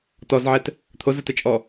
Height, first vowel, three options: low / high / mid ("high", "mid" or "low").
mid